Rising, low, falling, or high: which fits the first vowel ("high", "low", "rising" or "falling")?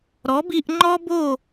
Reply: rising